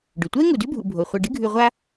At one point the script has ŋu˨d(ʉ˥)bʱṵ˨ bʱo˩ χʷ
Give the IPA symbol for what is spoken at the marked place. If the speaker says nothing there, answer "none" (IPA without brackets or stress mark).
ʉ˥